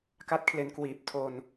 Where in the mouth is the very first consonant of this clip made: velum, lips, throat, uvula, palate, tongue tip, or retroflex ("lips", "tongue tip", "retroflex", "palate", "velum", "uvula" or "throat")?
velum